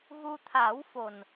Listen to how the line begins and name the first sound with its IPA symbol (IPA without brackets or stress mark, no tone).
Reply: ɣ